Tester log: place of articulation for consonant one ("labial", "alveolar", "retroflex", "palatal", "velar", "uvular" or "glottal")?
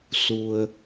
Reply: alveolar